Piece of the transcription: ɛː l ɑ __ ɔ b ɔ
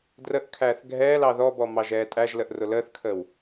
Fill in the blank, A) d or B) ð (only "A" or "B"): B